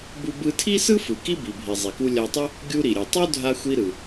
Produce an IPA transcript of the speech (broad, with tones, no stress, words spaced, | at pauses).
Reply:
bu˧bɯ˧tʰi˥sɯ˥ fɯ˩ki˥bi˩bʱi˩ zˤi˩ku˧ lʲa˧tˤu˥ | ɡʲu˧ɾi˩ɾʲɯ˩ tˤu˥ dʱa˧xʷi˧ ɾɯ˩